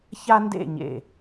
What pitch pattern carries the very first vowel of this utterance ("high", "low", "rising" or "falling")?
high